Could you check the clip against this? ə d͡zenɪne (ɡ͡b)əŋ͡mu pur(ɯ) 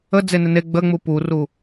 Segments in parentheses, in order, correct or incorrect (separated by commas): correct, incorrect